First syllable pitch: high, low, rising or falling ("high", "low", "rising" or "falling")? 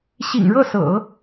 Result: low